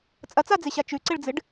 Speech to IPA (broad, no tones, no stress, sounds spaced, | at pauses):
t͡sʼ ɐ t͡s a d͡z e ɕ a t͡ʃ ʉ ǀ e ɭ d͡z ɨ ɖ